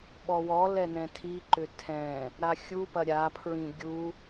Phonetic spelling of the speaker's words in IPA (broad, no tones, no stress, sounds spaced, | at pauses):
ɓ ɔ w ɔ l ɛ n ɛ̃ tʰ i ǃ ʏ tʰ ɛ̃ | ɾ a xʲ u p ɐ ɾʲ a pʰ ɹ ĩ ɡʲ u